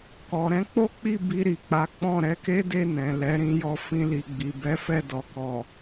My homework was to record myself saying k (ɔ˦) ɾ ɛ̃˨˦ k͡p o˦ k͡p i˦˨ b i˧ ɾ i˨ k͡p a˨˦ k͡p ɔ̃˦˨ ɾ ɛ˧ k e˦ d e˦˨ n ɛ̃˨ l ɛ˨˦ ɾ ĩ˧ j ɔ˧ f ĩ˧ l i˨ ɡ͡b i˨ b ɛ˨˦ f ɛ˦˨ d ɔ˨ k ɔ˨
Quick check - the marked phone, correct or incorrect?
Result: incorrect